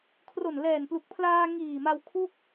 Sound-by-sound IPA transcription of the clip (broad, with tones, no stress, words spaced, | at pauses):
kʰro˨˩nlɛː˨˩nplu˨˩k̚pʰlaː˧ ŋiː˨˩ma˧w kʰu˥˩k̚